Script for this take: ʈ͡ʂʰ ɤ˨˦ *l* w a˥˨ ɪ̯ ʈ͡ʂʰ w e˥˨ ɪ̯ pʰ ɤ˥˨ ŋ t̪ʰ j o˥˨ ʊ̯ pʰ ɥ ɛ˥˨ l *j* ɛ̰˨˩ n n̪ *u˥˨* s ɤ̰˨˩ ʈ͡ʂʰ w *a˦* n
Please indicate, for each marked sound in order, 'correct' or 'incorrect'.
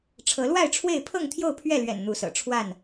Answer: correct, incorrect, incorrect, incorrect

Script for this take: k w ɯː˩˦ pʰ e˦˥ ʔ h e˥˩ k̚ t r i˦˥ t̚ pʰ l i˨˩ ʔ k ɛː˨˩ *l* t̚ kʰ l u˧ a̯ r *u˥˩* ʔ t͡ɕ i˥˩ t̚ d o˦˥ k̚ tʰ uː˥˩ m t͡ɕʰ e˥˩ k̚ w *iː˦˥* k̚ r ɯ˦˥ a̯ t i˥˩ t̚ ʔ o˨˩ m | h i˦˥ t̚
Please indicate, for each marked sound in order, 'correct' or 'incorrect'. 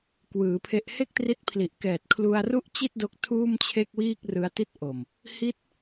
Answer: incorrect, correct, incorrect

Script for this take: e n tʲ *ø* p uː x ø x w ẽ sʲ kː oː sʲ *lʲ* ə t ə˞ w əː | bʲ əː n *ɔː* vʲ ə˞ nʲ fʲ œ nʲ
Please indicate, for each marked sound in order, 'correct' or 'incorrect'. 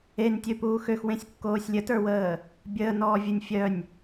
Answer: correct, correct, correct

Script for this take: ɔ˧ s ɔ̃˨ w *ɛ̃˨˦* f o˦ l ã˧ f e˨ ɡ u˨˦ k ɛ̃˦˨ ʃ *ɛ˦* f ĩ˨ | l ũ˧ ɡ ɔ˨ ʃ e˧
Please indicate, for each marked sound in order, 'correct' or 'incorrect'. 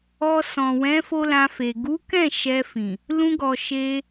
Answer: correct, incorrect

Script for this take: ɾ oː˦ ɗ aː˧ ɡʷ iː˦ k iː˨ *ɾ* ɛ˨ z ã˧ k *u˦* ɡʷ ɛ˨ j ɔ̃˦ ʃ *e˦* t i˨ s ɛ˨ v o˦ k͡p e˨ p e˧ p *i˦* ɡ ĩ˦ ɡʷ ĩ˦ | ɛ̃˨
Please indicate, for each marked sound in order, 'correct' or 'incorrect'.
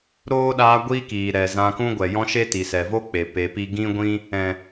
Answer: correct, incorrect, correct, correct

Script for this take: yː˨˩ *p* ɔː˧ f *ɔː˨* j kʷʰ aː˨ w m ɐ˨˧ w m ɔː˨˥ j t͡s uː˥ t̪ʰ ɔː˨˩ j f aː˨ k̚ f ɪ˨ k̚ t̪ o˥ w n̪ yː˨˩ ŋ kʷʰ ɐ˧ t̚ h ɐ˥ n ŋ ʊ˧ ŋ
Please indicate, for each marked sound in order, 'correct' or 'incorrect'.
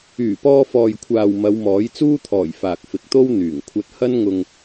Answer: correct, correct

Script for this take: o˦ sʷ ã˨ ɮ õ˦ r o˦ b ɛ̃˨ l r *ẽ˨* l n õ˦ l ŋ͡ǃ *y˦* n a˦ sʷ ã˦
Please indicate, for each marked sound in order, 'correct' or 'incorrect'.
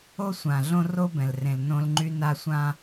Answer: correct, correct

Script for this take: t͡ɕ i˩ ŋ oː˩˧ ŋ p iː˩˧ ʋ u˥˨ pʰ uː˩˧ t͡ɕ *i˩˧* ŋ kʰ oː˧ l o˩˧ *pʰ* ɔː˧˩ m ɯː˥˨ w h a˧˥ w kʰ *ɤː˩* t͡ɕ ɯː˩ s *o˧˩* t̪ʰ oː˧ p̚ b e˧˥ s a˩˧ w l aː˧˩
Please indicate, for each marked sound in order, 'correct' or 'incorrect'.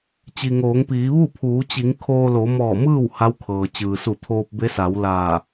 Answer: correct, incorrect, correct, incorrect

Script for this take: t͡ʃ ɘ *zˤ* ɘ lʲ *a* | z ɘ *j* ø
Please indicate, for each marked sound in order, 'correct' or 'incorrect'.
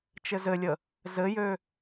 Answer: incorrect, incorrect, correct

